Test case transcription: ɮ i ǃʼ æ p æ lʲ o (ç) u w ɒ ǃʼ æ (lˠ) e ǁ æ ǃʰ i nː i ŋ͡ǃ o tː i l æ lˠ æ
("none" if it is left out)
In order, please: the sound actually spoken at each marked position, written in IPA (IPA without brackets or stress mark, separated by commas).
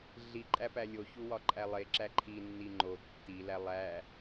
ç, lˠ